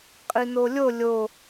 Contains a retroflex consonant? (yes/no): no